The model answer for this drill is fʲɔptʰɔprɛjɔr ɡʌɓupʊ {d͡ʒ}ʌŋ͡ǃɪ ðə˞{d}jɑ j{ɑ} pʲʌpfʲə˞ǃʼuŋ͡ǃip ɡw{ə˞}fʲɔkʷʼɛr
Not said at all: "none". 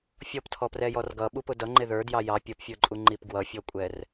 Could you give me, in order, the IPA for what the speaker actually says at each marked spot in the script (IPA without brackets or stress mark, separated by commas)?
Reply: d, d, ɑ, ʌ